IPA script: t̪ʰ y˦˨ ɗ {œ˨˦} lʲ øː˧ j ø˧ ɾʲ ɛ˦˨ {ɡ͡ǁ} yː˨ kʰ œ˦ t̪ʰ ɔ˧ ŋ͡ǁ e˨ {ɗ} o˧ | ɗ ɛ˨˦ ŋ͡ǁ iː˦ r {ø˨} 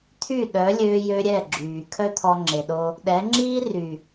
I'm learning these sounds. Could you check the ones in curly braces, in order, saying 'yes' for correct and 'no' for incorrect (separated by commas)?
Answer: yes, yes, yes, no